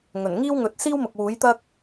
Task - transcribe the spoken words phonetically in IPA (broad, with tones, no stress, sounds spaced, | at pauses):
ŋ ɵ˨˩ n ŋ iː˥ w ŋ ɵ˨˥ t̚ s iː˥ w m ʊ˨ k̚ w uː˨˥ j t̪ ɐ˥ k̚